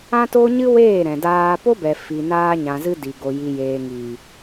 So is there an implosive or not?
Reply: no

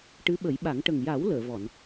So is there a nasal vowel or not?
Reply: no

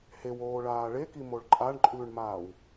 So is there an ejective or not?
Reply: yes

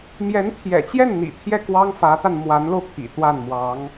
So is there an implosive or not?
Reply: no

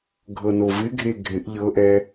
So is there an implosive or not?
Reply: no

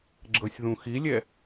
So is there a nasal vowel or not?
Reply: yes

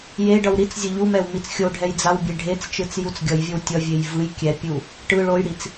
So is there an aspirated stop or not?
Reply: no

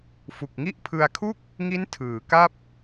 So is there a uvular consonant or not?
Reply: no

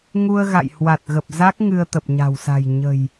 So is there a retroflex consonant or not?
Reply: no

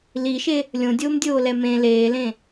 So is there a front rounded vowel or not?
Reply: no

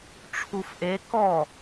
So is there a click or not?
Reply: no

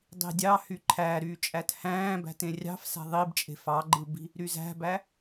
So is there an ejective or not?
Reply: yes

